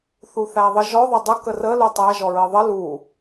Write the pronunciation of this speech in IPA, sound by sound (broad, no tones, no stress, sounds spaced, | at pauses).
θ u θ æ ðˤ ɘ ʒ ɔ ðˤ ɘ dˤ ə k ə r ə l u tˤ æ ʒ ɔ ɹ ɘ ðˤ ə l u